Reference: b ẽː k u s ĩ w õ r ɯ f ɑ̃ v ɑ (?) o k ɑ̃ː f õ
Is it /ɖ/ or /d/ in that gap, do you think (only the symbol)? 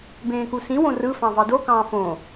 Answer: d